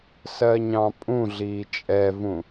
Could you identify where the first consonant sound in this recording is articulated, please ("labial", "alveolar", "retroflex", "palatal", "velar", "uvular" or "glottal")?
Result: alveolar